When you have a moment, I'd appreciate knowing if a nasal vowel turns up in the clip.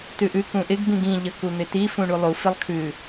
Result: yes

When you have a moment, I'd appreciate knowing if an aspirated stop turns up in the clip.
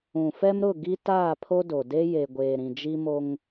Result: yes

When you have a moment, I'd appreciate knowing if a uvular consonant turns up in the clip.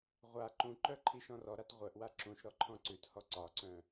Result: yes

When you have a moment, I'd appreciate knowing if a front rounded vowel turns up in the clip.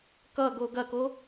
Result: no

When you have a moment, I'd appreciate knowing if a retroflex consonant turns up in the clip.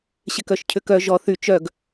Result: no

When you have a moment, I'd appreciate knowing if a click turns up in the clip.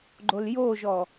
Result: yes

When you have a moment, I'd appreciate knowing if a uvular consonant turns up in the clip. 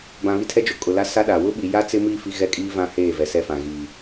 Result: no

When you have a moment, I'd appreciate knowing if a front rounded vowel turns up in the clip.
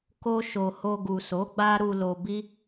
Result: no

